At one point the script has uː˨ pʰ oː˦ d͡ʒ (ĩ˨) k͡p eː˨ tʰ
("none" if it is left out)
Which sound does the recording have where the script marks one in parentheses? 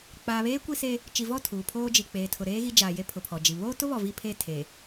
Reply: i˨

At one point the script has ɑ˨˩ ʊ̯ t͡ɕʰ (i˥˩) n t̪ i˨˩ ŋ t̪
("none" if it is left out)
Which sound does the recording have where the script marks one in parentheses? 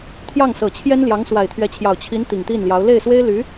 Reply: i˧˥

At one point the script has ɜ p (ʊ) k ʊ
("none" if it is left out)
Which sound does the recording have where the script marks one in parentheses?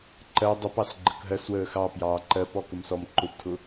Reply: ɔ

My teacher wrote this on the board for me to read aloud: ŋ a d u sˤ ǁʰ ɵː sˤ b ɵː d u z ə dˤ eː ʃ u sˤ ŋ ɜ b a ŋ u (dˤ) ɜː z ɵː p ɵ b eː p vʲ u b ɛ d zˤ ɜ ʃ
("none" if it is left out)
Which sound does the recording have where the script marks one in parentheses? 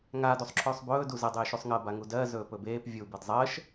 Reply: d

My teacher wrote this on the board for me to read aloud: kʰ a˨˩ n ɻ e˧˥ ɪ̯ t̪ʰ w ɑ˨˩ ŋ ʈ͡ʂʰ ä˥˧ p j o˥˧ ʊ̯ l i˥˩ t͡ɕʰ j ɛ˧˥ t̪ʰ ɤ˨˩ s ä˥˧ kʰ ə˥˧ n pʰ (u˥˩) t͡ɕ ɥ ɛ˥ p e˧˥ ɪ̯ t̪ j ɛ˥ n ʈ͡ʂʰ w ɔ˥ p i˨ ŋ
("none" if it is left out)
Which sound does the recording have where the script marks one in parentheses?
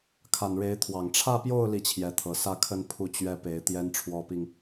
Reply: u˥˩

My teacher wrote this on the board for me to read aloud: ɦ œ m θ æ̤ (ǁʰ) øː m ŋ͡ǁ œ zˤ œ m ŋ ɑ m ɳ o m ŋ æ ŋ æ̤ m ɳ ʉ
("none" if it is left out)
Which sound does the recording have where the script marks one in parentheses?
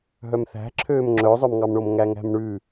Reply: ǁʰ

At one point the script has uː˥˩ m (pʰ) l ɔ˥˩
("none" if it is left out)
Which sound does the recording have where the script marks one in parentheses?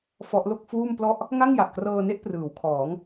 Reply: p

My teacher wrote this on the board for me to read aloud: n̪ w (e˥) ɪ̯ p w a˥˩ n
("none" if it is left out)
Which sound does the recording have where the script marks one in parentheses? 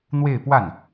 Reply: e˥˧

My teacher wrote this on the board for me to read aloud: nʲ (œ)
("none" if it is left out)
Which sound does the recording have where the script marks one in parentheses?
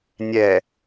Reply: ɛ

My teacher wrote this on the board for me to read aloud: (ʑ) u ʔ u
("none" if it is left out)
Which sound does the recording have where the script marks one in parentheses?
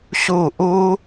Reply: ɕ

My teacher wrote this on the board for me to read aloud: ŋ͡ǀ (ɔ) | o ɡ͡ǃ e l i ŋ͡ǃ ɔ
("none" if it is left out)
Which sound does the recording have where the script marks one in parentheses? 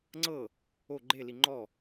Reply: ɤ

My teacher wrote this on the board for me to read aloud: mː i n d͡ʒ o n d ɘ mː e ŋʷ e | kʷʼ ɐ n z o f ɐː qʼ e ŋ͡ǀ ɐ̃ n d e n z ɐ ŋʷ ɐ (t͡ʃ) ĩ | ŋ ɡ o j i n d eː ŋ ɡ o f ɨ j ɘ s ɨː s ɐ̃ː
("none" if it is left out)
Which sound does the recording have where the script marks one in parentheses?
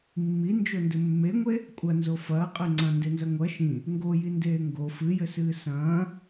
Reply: ʃ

